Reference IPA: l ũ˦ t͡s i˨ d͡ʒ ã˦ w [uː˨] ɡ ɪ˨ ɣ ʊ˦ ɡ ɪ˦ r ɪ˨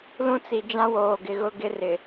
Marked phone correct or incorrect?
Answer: incorrect